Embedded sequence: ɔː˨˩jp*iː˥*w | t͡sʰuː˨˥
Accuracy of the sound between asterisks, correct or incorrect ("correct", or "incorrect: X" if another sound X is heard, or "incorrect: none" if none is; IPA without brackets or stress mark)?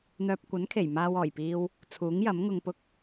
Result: incorrect: iː˧